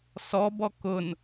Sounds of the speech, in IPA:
s ɔ b ɔ k ʊ n

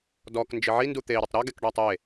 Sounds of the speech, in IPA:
d ɔ k n d͡ʒ ɪ ʕ i n d u t̪ e i̯ ɾ ʊ tˤ ɾ ɔ ɡ ɛ k ɖ ɔ tˤ e

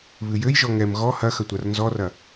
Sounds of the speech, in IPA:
β ɨ j ɘ j ʒ ɔ ŋ ɛ m ɣ ɔ h ɐ x ɐ tʷ a r n z ɔ r ɐ

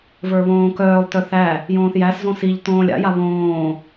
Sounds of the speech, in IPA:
v ə˞ β õː k œː lˠ t œ θ æ | j õː θ j æ s z õ s i ʎ t õː lʲ a̰ j a β õː

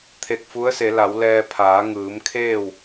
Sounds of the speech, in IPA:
t̪ʰ e˧˩ k̚ f u˧˥ ə̯ s e˩˧ l a˩˧ w l ɛː˧ pʰ aː˩˧ ŋ ɯː˩˧ m kʰ eː˥˨ w

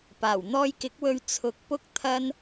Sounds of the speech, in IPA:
p aː˨˩ w n̪ ɔː˧ j k ɪ˨˥ k̚ w ɵ˧ ɥ t͡sʰ ʊ˨˥ k̚ p ʊ˥ k̚ t̪ʰ ɐ˥ n

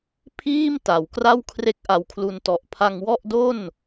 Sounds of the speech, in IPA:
pʰ iː˥˩ m t a˩˦ w k r a˥˩ w kʰ r e˥˩ k̚ ʔ a˧ w kʰ l u˧ n t ɔ˨˩ ʔ pʰ a˧ ŋ w ɔ˥˩ ʔ d o˥˩ n

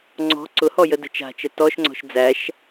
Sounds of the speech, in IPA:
ŋ͡ǀ ɔ̤ ǀ ʊ h ɔ j ə d ə̤ t͡ʃ a̤ t͡ʃ ə t ɔ ʃ ŋ͡ǀ ɔ̤ ʃ d͡z æ ʃ

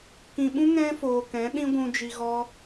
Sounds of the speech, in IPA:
k ĩ˨ ɓ ũ˦ ŋ ɛ̃˦ f oː˨ k ɛ̃˨˦ ɗ ĩ˦ ɡʷ ũ˧ d͡ʒ i˧ ɣ ɔ˦

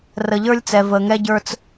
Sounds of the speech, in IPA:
r ə˨ ʎ ə˞˦ lʲ t͡s ɛ˨ v ə˨ ŋ ɛ˦ ɟ ə˞˦ t͡s

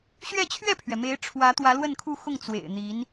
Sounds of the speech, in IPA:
ɕ ɥ ɛ˥˧ t͡ɕʰ ɥ ɛ˥˩ pʰ ɥ ɛ˩ m e˧˥ ɪ̯ ʈ͡ʂʰ w ä˧˥ t̪ w ä˧˥ l w ə˥˧ n kʰ u˥˧ x ʊ˥˩ ŋ t͡s w ḛ˨˩ ɪ̯ n̪ i˧˥ n

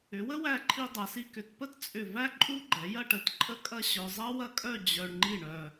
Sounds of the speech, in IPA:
ʏ˩˧ w ə˥ w æ˧˩ ǃʰ i˧ dˤ ɐ˩˧ s i˧ k ʏ˧˩ t p ə˥ t t͡sʼ ʏ˧˩ v æ˥ ǃʼ u˥ ɡ͡ǃ ɛ˩˧ j ɐ˥˧ ʈ ə˧˩ t ǃʼ ə˥˧ kʼ ɐ˥˧ ɕ œ˧ zˤ ɐ˥ w ɐ˥ kʼ œ˥˧ d͡ʑ œ˧ ɳ ŋ͡ǃ i˥˧ ɳ œ˧

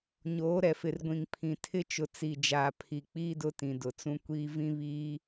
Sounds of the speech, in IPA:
ɲ oː˨˦ ɾ ɛ˨ f ɪ˨ r ɡʷ ĩ˨ ŋ pʰ ĩ˨ tʰ ɪ˦ t͡ʃ ʊ˨ t͡s i˨ d͡ʒ aː˨ pʰ i˨ k͡p iː˦ d ʊ˦ t ĩ˨ d ʊ˨ t͡s ũ˦ kʷ iː˦ v ĩ˦ β iː˦

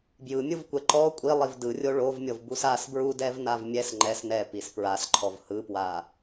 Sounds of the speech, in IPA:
b j ɯ mʲ ɯ v kʷ ɛ ǃ ɔ kʷʼ i lˠ i v d ɯ rʲ o ɭ o v mʲ ɤ v b u s a s b ɹ u d ɛ v n a v mʲ ɛ s ŋ͡ǃ ɛ s n ɛ p i s p ɹ a s ǃʰ ɔ v h ɯ p w a

